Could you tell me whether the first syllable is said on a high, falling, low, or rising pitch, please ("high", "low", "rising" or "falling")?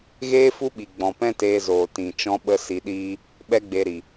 high